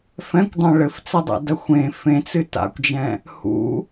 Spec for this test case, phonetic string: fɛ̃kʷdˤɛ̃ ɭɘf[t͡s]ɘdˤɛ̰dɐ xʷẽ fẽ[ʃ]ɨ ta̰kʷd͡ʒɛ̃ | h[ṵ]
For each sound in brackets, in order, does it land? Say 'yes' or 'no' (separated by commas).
yes, no, yes